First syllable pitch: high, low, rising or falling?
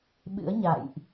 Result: rising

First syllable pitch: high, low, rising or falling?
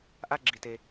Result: high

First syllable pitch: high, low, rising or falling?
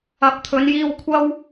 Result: rising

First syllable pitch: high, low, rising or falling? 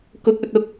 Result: high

